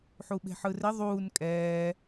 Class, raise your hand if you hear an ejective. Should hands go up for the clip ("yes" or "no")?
yes